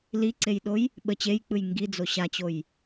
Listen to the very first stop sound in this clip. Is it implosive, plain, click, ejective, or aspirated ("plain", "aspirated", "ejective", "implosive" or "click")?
click